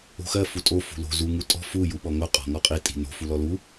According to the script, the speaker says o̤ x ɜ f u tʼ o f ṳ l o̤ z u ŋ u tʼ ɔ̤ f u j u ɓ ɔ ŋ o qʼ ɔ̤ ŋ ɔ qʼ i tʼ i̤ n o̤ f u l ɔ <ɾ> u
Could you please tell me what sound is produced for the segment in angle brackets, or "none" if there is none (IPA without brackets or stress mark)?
l